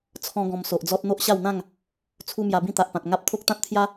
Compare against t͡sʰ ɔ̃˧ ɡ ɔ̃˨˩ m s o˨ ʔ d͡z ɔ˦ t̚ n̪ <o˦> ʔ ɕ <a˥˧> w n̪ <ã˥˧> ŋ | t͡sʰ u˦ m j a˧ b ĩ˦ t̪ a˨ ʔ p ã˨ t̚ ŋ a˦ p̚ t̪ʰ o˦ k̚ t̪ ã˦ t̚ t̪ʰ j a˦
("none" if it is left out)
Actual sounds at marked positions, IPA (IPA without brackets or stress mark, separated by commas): o˦, a˥˧, ã˥˧